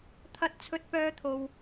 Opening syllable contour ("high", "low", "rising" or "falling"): high